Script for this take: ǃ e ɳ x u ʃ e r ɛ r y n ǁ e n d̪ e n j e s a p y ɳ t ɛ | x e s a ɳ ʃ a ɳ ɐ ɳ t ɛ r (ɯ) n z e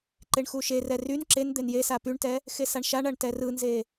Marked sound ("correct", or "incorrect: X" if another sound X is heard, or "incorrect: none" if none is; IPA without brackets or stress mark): correct